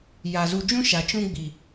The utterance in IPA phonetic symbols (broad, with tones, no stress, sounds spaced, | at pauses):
j a˨ z u˨ d͡ʒ ũ˦ ʃ a˨ t͡ʃ ũ˦ ɡ͡b i˨